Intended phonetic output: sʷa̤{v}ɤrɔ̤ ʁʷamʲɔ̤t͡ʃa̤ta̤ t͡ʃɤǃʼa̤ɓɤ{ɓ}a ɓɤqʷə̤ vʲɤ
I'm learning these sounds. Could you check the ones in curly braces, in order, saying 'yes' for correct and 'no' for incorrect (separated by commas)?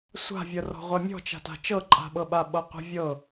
no, yes